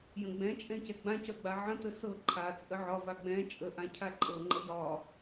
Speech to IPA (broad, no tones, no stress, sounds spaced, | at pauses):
j ə̃ ɡ͡b ɛ̃ t͡ʃʼ ɛ̃ c ɛ ɡ͡b ã c œ ɡ͡b a ʕ ə̃ t ə s ɤ ǃʰ a t͡sʼ ə ʕ ɒ v a ɡ͡b ɛ̃ t͡ʃʼ ə ʔ ã cʰ a ǃʼ ɤ ŋ͡ǃ ə j ɒ